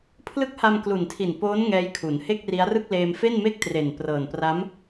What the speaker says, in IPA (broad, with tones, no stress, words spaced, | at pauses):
pʰlɯ˦˥k̚ha˧mklu˨˩ntʰi˨˩n poː˦˥n ŋɛː˦˥jkʰu˩˦n he˥˩k̚ri˦˥a̯rɯ˥˩k̚leː˧m fe˥˩nme˥˩k̚tre˨˩n prɤː˨˩npra˦˥m